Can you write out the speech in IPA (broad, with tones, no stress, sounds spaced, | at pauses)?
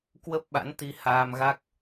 k w ə˦˥ p̚ ɓ a̰˧˥ n t̪ i˧ h aː˧ m ɣ a˦˥ k̚